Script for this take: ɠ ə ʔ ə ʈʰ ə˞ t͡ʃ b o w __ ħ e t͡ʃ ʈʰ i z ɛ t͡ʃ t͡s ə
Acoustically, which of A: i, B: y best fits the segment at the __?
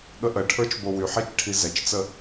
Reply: B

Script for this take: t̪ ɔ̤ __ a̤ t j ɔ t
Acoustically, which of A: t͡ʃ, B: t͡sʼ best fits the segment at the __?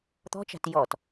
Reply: A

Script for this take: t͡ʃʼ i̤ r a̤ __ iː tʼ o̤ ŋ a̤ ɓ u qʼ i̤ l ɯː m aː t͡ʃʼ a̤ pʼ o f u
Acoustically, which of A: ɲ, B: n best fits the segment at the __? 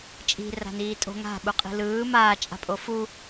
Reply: B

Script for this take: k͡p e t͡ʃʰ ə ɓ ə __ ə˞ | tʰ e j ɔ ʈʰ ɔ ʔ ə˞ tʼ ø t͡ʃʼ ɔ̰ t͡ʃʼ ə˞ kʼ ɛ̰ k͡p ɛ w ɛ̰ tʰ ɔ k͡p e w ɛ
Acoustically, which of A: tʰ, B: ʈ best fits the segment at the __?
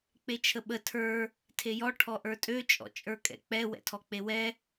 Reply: A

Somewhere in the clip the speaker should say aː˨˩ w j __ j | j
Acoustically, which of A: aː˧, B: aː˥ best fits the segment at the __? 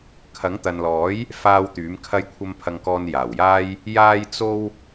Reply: B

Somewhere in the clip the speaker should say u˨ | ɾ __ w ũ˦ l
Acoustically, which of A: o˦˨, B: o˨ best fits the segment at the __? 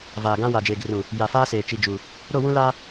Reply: A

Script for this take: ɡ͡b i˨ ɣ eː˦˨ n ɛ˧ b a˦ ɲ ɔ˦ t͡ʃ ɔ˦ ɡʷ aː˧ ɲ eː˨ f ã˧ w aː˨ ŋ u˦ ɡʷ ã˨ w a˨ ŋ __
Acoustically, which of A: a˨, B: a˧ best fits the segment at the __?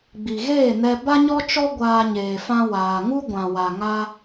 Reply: B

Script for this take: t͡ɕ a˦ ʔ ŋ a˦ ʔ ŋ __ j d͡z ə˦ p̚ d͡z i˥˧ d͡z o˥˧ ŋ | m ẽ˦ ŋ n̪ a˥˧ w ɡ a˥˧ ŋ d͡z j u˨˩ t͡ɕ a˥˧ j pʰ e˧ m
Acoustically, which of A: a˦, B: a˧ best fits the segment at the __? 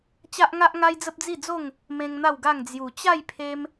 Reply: A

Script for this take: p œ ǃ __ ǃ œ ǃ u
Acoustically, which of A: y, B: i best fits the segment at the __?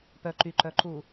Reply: A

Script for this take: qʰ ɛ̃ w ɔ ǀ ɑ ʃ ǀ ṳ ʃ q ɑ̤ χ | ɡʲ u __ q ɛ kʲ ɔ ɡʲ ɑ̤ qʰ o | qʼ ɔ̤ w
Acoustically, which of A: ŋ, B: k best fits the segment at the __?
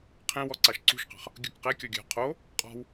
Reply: B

